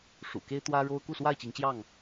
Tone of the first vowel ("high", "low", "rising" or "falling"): low